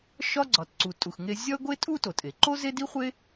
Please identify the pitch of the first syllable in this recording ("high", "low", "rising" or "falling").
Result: high